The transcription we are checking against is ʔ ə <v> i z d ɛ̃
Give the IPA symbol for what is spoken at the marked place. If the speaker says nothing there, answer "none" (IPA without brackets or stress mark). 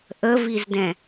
v